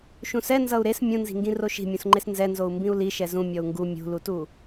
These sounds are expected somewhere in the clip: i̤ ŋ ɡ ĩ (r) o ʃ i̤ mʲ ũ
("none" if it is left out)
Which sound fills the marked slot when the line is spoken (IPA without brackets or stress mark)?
r